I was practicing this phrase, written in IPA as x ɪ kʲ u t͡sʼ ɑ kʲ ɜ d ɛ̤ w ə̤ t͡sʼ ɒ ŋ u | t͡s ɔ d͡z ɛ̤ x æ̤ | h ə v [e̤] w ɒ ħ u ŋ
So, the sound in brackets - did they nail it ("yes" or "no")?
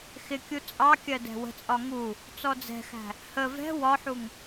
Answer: no